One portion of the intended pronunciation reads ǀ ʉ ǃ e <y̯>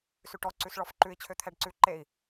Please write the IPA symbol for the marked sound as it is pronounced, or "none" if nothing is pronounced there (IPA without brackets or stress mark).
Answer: i̯